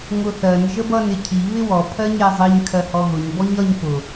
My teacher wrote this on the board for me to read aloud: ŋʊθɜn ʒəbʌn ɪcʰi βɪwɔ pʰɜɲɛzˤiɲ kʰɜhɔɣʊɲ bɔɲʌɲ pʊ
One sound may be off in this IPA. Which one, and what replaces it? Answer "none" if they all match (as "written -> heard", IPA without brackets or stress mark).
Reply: none